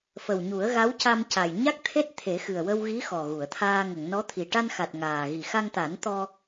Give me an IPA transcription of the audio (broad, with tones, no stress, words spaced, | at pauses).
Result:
fə˨˩wɲu˨˩˦ə̯ɣa˧˥w ca˧mca˨˩j ɲa˦˥k̚t̪ʰe˦˥t̚ t̪ʰe˨˩˦xɨ˨˩ə̯ wə˧wɣi˧˥ xɔ˨˩ɣu˨˩˨ə̯t̪ʰaː˧ ŋə˨˩˨ŋnɔ˧˥t̪ʰi˨˩ ʈa˧nxa˨˩t̚ ŋaː˨˩ ɣi˨˩xa˧ŋt̪a˨˩˦n t̪ɔ˧